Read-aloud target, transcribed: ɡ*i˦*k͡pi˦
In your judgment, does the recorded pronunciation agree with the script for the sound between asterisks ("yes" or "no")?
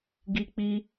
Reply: yes